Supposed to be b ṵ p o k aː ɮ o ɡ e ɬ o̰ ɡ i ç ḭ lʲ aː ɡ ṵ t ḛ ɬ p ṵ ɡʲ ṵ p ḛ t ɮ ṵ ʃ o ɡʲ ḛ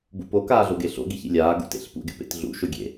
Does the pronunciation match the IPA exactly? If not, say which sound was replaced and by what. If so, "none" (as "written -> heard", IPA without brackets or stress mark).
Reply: none